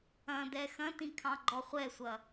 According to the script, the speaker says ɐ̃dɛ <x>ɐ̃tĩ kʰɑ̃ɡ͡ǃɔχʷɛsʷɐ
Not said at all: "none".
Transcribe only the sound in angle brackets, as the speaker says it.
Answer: x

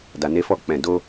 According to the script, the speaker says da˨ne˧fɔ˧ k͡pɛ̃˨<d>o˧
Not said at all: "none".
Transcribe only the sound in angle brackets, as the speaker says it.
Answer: d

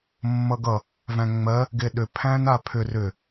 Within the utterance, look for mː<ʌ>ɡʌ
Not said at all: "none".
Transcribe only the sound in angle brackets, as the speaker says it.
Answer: ʌ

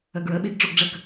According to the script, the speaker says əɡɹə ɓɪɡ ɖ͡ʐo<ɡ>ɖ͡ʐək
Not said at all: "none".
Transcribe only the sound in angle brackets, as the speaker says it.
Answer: ɡ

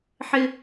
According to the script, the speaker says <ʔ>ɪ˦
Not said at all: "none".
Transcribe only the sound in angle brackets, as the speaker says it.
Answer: ħ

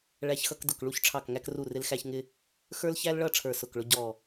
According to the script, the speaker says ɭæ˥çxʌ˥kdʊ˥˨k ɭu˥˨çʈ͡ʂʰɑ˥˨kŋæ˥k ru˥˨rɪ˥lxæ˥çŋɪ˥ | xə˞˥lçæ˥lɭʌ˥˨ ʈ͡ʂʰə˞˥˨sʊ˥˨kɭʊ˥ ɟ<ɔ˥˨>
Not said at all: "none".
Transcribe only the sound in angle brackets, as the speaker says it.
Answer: ɔ˥˨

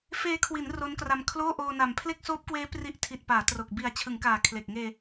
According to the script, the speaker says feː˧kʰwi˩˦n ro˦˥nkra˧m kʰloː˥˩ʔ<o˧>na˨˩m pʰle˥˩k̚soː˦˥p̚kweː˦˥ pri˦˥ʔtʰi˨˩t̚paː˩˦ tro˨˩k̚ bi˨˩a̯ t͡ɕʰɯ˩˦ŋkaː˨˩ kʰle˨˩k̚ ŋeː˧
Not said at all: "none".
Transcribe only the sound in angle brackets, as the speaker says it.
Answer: oː˧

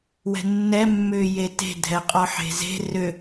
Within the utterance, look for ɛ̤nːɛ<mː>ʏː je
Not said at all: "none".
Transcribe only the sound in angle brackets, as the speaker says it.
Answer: mː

